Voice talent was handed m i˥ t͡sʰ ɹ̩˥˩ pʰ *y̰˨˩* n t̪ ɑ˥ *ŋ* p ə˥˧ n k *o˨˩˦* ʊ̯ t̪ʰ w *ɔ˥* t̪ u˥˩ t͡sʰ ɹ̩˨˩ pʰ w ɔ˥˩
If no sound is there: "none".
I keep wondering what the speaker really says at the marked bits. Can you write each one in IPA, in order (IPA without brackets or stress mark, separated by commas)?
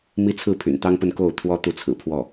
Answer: y̰˨˩, ŋ, o˥˩, ɔ˥